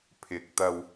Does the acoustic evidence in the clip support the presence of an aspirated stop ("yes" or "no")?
yes